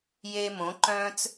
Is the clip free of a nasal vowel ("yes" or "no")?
no